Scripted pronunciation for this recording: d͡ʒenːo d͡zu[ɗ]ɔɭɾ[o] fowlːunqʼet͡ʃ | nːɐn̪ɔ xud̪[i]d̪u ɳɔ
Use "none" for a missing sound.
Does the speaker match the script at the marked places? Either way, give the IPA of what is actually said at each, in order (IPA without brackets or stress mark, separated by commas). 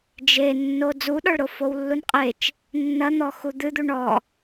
ɗ, o, ɨ